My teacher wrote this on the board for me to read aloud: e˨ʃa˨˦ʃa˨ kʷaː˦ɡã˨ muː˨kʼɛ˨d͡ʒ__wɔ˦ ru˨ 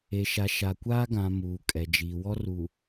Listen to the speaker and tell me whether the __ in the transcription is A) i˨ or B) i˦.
A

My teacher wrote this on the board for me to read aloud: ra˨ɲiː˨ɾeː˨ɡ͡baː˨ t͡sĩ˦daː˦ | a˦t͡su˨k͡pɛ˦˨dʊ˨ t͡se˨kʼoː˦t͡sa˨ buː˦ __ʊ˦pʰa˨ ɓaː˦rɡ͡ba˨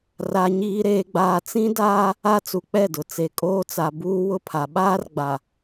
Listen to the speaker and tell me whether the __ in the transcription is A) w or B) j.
A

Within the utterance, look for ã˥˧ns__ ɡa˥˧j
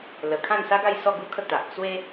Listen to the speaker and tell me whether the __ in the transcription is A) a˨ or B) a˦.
B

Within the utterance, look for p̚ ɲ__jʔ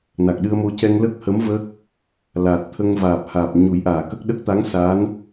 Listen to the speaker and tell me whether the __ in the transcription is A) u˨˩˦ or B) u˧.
A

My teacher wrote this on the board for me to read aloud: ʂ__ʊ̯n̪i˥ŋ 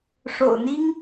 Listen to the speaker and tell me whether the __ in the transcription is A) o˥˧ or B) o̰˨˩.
B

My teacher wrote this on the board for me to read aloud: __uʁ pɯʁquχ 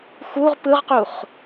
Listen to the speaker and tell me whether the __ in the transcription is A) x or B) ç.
A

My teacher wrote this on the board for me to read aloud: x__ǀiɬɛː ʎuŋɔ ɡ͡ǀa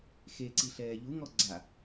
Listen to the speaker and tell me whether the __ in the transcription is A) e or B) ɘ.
A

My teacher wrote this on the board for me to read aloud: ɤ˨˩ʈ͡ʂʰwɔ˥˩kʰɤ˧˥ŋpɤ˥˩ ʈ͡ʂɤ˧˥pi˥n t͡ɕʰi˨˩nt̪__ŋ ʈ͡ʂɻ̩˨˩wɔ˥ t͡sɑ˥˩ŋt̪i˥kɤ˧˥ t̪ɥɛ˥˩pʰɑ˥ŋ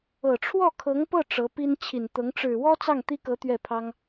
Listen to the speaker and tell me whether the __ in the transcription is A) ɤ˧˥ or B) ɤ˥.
A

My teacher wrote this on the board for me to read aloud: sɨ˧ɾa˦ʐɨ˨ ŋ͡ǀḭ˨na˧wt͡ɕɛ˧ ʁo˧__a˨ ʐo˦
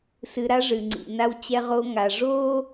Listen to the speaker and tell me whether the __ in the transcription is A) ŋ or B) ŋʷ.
A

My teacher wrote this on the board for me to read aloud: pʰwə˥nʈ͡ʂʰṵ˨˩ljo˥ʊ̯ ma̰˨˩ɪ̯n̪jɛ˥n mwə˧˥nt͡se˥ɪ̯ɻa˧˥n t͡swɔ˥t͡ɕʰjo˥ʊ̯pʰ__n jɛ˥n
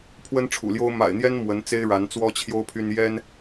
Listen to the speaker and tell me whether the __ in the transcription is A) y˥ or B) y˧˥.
A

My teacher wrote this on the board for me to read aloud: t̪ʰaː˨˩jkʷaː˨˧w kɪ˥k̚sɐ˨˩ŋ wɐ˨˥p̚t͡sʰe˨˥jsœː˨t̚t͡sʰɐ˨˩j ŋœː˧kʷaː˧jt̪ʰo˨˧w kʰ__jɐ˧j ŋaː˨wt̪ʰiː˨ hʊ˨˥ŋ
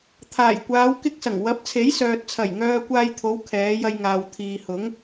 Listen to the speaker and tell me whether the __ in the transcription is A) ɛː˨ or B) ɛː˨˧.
B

